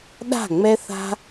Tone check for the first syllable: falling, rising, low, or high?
falling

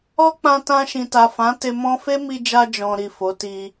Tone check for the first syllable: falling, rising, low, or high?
high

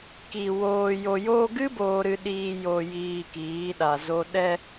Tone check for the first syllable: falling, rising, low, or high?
low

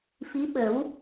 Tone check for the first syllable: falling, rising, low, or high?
rising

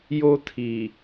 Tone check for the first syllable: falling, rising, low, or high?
high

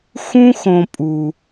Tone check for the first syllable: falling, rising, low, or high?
high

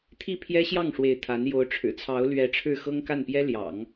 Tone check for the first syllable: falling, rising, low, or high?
falling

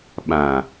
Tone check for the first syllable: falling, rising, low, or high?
low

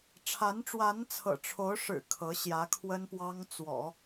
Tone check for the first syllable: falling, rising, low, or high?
rising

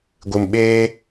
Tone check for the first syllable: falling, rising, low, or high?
low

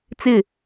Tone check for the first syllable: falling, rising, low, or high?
falling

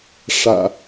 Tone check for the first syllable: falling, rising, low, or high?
low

